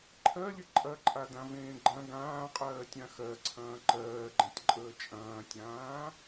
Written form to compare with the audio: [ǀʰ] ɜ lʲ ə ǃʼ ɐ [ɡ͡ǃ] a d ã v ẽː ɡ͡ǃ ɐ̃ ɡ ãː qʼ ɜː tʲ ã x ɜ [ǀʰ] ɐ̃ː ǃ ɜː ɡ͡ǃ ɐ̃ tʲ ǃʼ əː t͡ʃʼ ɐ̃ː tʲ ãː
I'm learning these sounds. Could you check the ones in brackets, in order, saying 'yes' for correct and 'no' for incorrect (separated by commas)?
no, no, yes